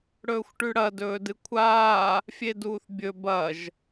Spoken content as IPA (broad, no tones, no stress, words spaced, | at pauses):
ɽɵːxʷʈʉɽɐ dɵːdɨkʷʰaː | fʲeduːθbʲɵ bɐʒ